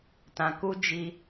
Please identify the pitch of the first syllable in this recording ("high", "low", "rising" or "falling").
low